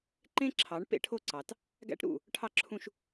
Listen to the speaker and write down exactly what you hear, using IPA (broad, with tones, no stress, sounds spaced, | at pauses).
ǃ ẽ˦ ǁʰ ɑ˨˦ ɳ p ḛ˦ ʈʰ o˦ ǀ ɑ˨ t | ɡ æ̰˦ ʈ ɾ ṵ˦˨ | ʈʰ ɑ˦ ǁʰ ũ˦ ʃ